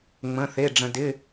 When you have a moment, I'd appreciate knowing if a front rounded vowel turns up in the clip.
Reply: no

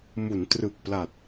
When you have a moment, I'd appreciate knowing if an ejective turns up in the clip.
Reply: no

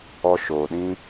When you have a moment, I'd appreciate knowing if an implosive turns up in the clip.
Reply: yes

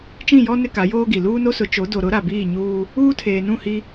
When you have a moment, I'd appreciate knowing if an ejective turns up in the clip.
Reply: no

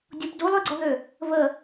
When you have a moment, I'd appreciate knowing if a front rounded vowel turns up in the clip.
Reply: yes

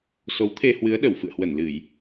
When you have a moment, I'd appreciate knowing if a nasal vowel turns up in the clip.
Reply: no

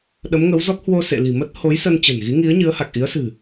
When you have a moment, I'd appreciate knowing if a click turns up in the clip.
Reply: no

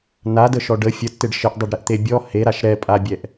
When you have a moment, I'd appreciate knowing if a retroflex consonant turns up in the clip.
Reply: yes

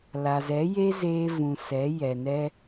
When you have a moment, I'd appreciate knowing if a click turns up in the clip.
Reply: no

